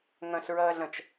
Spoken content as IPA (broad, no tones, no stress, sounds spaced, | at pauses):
ŋ ɐ̃ ɬ ɹ ɐː ɮ ɐ̃ t͡ʃ